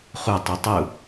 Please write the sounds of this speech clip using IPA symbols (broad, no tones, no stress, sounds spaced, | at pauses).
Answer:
χ u tˤ i tˤ u